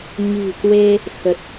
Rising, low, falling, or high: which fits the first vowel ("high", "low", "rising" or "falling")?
low